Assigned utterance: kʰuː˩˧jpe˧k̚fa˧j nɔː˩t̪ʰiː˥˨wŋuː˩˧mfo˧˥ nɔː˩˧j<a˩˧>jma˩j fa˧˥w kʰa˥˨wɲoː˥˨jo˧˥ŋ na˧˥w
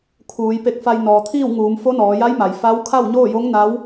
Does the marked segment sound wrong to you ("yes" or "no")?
yes